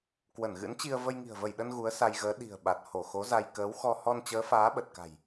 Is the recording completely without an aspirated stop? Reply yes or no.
yes